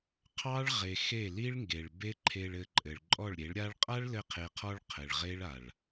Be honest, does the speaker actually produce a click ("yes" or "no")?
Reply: yes